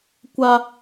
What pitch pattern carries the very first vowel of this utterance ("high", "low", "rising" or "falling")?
high